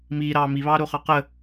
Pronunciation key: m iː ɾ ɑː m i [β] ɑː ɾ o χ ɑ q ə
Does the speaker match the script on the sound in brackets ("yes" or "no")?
yes